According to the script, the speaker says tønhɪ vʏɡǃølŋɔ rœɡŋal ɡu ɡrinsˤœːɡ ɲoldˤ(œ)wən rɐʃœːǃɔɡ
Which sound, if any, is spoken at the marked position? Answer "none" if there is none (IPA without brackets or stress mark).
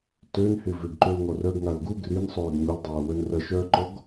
œː